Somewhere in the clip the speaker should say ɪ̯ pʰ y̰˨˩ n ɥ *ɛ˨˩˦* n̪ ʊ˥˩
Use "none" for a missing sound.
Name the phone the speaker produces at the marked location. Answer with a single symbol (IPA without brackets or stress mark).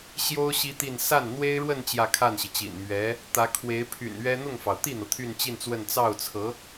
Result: ɛ˥